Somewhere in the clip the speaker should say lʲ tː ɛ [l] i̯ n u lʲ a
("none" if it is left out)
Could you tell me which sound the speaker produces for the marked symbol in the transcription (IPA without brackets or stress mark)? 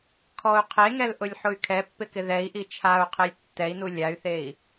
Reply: none